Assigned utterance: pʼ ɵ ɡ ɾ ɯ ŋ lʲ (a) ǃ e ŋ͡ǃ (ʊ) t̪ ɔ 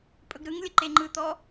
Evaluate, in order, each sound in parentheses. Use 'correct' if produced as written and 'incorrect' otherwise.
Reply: incorrect, incorrect

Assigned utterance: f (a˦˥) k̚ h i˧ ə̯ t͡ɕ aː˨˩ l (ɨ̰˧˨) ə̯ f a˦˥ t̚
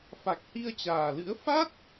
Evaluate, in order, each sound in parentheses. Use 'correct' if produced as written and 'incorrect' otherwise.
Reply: incorrect, incorrect

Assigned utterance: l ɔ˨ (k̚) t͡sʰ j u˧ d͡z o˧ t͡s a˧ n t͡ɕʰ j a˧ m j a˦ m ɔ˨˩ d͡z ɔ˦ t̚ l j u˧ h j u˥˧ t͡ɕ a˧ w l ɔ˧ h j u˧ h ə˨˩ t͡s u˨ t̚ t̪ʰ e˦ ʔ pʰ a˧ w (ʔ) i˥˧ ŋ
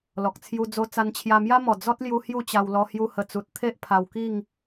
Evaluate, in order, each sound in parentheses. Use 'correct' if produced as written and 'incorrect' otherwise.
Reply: correct, incorrect

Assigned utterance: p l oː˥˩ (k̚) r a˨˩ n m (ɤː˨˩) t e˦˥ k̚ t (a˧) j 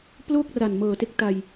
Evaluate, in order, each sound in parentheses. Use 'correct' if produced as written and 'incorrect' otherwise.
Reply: correct, correct, correct

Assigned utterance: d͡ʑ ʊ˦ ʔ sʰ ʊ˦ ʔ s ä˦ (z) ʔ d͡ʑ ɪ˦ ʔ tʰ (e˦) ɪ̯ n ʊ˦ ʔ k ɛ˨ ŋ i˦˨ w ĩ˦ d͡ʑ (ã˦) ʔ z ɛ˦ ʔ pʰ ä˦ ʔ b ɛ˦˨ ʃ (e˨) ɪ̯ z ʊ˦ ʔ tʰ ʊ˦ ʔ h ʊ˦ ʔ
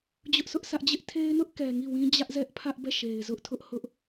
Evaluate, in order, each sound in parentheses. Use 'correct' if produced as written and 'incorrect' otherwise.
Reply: incorrect, correct, incorrect, correct

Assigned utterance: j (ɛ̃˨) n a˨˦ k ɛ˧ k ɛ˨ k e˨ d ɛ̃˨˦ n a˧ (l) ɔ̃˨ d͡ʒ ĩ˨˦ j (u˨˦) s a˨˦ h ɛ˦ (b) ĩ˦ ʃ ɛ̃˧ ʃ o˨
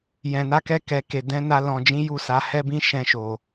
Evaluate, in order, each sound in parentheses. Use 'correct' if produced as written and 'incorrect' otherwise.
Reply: correct, correct, incorrect, correct

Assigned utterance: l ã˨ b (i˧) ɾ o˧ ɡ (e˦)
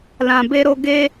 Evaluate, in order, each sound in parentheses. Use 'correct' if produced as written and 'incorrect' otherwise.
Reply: incorrect, correct

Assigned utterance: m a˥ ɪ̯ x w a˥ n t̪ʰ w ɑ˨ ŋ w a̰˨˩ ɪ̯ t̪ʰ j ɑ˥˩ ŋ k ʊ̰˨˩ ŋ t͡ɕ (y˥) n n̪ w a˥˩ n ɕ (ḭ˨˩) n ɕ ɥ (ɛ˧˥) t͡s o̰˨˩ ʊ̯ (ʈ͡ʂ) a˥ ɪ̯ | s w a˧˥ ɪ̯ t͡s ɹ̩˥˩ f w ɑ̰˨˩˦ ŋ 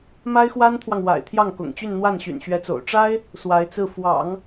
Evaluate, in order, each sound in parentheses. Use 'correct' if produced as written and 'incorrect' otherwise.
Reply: incorrect, incorrect, correct, correct

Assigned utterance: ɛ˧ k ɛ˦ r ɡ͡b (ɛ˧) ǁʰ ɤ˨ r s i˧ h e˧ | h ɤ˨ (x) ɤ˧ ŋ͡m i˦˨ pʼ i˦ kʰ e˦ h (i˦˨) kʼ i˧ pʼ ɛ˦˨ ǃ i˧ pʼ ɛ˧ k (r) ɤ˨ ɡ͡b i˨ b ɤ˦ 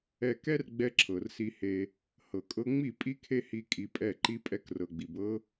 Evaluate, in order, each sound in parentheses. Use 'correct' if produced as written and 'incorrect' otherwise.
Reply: correct, incorrect, incorrect, correct

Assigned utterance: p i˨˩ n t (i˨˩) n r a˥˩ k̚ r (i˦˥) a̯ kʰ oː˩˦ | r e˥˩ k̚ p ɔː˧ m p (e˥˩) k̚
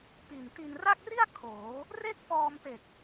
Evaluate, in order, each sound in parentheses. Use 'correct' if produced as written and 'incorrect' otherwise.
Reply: incorrect, incorrect, incorrect

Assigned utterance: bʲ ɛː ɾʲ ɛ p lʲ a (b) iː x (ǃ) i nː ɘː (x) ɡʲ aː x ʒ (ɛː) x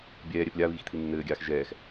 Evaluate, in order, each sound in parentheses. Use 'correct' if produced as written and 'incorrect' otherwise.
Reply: incorrect, incorrect, incorrect, correct

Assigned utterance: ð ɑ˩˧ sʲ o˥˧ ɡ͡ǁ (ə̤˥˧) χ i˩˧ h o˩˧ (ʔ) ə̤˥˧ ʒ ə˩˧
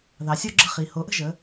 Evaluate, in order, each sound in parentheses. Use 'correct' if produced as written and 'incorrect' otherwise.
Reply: correct, correct

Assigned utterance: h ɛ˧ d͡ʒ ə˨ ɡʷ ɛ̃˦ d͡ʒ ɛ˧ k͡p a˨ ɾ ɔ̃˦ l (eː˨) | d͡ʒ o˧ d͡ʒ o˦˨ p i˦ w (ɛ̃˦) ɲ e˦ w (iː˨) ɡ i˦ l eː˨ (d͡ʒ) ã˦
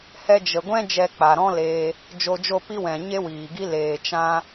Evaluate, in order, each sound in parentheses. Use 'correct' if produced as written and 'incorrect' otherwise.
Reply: incorrect, incorrect, correct, incorrect

